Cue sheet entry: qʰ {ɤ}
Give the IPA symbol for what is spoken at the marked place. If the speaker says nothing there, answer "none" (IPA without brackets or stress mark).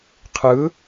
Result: ɯ